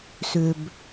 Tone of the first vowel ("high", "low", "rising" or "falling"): low